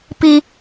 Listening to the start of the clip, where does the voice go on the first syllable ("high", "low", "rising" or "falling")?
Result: high